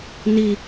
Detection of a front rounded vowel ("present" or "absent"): absent